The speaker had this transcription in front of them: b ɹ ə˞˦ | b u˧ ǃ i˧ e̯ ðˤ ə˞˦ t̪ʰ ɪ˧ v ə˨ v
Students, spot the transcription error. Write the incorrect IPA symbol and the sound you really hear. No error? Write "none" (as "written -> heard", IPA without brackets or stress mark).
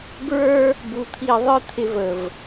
ǃ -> t̪ʰ